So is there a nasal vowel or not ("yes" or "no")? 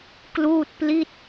no